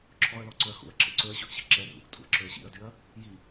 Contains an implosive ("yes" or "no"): no